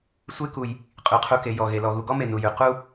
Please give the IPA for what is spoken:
sʷ e˦ k u˩ j | qʼ ʉ˩ qʰ u˨ k e˩ j ɔ˩ ɣ e˩ l ɔ˩ ɣ u˨ ɡ ɔ˥ m e˨ n u˨ j ʉ˩ q u˥

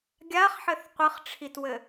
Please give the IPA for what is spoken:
ɡʲ a χ ħ ɘ θ qʷ ɨ χ ʈ͡ʂʰ i t w ɘ

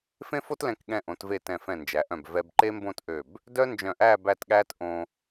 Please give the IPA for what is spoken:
f ẽ˥ f o˥ t l ɛ̃˧ k ɠ ɛ̃˧ ʔ õ˩˧ t v e˧˩ t ɛ̃˧˩ f ɛ̃˧˩ n d͡ʒ æ˩˧ ʔ œ̃˧˩ b v ɛ˧ b ǃ e˥ m b õ˥˧ t ʔ ø˧˩ b | d œ˥ n d͡ʒ œ̃˧˩ ʔ æː˥˧ b æ˥˧ t ɠ æː˥ t ʔ õ˧

